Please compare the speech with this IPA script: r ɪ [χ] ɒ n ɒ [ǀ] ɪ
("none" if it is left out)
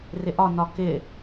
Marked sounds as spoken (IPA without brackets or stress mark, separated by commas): ʔ, k